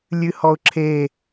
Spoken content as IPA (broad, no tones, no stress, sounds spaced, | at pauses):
lʲ ɨ h ɔ ʊ̯ ǁʰ e